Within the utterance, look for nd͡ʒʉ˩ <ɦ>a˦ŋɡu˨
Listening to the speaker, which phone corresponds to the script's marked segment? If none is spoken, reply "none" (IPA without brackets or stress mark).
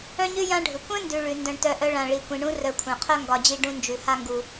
h